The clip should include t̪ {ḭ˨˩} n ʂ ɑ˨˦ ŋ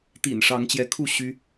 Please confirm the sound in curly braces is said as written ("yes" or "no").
yes